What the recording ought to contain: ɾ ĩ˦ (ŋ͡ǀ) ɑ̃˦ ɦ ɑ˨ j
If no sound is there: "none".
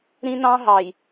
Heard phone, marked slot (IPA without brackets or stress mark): n